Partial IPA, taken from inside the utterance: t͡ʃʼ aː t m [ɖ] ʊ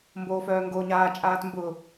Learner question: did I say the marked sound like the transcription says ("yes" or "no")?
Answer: no